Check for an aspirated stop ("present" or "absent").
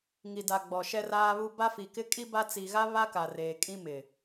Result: absent